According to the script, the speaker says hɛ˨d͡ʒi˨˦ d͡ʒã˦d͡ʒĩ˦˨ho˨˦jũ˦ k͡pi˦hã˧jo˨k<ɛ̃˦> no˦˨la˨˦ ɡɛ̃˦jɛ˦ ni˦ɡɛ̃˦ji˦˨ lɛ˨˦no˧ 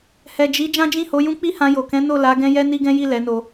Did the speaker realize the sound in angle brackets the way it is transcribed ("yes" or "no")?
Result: no